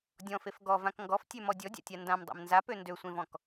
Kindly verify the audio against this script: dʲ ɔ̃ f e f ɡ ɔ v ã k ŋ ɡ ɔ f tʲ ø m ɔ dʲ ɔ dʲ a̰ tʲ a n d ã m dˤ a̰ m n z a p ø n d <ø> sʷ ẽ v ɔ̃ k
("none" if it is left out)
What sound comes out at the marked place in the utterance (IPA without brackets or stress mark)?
ø